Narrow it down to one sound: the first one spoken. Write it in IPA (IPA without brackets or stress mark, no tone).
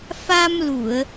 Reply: f